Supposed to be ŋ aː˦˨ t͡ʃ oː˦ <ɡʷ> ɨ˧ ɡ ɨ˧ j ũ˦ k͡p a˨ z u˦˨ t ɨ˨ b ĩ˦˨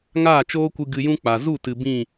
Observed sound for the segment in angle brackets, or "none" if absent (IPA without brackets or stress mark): kʷ